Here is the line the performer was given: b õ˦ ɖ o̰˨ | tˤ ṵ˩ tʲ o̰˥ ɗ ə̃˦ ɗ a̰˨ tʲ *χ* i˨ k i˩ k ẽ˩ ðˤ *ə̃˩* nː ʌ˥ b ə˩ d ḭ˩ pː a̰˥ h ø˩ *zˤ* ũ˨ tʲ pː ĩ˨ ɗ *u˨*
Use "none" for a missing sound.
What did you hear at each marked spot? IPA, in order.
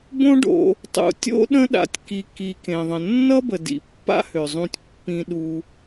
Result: k, ə̃˩, zˤ, u˨

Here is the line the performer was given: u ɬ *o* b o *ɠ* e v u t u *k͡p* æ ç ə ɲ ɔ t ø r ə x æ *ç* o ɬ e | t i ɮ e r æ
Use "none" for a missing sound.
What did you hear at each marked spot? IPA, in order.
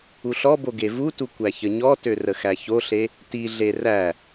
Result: ɔ, ɡ, kʷ, ç

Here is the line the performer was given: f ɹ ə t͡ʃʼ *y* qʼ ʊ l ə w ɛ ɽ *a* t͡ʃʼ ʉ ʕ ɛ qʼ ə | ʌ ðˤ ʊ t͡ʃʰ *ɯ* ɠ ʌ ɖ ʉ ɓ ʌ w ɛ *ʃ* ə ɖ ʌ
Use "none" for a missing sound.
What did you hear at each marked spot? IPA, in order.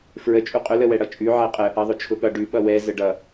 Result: u, ʌ, ʊ, z

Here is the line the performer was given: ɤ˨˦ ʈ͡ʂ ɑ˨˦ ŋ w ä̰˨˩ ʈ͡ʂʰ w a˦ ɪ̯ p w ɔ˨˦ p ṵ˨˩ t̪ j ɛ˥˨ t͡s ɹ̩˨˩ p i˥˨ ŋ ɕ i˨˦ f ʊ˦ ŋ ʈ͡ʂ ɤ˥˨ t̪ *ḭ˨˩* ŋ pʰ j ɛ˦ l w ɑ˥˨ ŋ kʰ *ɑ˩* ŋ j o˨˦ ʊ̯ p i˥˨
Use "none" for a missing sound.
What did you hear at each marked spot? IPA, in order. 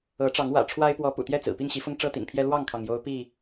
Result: ḭ˨˩, ɑ˩

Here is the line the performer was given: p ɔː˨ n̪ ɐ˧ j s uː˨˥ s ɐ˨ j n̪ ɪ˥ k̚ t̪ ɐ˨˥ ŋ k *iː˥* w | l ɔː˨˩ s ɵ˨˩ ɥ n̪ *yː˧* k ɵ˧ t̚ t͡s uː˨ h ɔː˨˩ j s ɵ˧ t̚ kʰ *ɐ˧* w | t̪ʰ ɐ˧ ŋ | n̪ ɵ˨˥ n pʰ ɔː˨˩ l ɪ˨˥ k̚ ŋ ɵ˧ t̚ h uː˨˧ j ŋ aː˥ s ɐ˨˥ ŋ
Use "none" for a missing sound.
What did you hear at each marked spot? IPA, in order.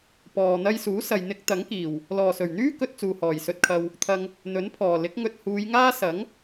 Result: iː˨˩, yː˥, ɐ˧

